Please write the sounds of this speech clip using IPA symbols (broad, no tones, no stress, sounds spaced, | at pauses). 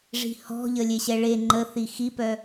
ʐ i̤ h ɔ̤ ʎ ə lʲ e ɕ ɛ ɭ e ŋ͡ǃ ə θ i x i p œ